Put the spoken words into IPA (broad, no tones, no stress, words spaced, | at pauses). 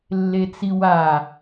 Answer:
lːet͡siwa